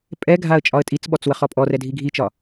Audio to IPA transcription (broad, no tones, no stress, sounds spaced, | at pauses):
pʼ ɛ ɡʱ a ə̯ t͡ʃʼ ɒ ə̯ tʼ i t͡s ɓ ɔ t͡s w ə χ ɔ pʼ ɔ r ɛ dʱ i ɡʱ i t͡ʃ ɒ